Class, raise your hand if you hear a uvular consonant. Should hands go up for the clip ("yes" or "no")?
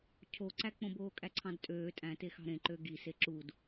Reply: no